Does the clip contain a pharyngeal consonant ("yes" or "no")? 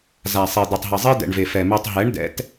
no